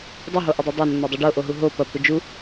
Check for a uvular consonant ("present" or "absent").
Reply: absent